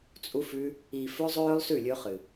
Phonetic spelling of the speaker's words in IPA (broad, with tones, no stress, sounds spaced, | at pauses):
t͡sʼ u˧ f ʉ˧ | i˨ f ɵ˧ zˤ ɵː˦ lˠ s ʉ˦˨ lʲ ɵː˧ χ ɨ˨